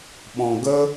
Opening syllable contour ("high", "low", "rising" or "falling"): low